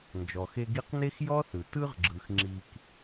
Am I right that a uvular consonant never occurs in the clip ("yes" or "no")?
no